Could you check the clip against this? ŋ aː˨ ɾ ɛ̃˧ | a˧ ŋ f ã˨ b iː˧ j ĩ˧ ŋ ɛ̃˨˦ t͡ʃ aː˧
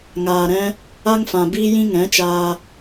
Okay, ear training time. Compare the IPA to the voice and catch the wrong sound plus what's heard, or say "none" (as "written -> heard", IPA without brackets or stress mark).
none